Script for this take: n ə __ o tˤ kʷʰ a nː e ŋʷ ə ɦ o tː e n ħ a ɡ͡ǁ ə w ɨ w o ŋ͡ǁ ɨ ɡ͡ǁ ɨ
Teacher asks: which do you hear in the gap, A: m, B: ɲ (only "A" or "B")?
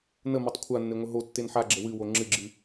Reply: A